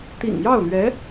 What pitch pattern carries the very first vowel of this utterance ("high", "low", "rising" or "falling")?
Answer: low